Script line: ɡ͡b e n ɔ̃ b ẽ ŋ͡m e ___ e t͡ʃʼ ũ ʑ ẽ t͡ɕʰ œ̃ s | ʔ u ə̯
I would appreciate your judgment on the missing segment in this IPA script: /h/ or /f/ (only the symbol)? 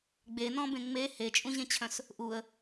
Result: h